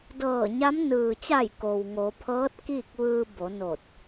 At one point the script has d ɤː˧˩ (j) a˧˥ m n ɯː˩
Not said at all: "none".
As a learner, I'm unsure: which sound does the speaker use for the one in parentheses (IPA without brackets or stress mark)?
ɲ